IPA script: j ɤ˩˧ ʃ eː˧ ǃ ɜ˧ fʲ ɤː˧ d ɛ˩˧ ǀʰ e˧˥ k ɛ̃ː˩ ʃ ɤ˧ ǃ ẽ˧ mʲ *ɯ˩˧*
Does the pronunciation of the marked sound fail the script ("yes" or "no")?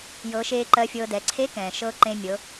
yes